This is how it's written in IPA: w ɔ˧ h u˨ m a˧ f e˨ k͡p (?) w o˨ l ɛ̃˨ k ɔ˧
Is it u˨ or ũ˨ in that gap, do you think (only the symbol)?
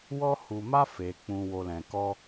ũ˨